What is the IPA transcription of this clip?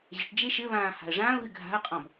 ʑɘʈ d͡ʒeʃɘβãː ha̤ə̯ʐãːʊ̯ɣɨ ɡʱa̤ə̯qʼɔ̃b

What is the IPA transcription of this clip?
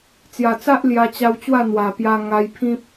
t͡sja˨˩t͡sa˦ʔ lja˧t͡ɕa˧wt͡ɕwa˥˧ n̪wa˨˩pja˧ ŋa˧jpʰĩ˦p̚

